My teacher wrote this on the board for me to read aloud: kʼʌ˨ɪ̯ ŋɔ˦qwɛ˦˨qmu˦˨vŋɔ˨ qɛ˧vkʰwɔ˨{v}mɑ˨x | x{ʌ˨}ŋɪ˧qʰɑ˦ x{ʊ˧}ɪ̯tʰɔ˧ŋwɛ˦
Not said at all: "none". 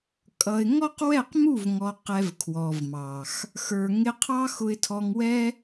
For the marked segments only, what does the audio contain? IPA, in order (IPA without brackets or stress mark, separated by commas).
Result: v, ə˞˨, ʊ˧